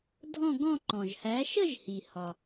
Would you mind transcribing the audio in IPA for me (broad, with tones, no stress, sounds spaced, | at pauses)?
dʱ ɔ̃˥˧ ɡ ɔ̃˥˧ ǃ ɔ̃˩ ʒ h æ˨˥ ʃ ə˥˧ ʒ h i˩ h ɒ˩